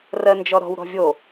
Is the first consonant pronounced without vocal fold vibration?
no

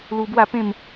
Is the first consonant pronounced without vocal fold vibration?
no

